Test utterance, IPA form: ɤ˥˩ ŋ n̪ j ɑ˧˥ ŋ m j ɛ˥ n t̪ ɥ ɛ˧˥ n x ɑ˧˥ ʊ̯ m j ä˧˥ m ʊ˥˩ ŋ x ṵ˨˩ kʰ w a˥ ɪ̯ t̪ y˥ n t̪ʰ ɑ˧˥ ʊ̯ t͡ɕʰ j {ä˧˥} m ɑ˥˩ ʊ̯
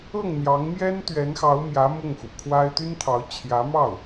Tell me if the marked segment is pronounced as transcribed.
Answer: yes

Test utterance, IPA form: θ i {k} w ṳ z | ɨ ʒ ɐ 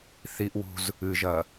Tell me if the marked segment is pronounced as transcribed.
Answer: no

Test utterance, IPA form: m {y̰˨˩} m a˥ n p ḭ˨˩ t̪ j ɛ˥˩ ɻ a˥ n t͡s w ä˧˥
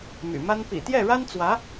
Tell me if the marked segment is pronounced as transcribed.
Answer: yes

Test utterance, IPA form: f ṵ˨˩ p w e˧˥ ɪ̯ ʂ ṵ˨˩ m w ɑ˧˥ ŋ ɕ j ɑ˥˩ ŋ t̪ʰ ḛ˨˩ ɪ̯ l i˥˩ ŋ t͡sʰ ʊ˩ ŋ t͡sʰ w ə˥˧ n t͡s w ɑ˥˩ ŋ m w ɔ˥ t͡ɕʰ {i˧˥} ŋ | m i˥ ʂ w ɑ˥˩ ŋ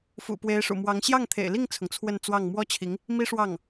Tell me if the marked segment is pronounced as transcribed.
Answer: yes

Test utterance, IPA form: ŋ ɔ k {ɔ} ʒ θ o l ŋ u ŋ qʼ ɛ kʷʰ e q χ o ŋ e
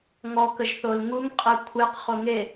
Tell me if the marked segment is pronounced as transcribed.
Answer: no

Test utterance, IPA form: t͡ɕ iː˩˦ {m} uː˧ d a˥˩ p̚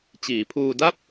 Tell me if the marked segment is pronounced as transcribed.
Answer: no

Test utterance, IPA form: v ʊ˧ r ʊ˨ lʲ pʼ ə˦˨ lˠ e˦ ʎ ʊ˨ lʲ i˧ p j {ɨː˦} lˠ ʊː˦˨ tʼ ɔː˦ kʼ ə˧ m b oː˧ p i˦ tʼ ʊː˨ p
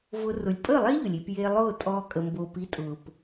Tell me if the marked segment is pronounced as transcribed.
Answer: no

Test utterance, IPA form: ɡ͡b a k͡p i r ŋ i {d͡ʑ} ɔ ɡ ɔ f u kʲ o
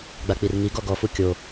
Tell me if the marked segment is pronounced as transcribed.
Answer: no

